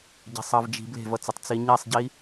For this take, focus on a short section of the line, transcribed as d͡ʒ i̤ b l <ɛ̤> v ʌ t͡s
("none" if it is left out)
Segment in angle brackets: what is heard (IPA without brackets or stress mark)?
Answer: e̤